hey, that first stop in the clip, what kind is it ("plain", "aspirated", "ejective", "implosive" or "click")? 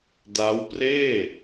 plain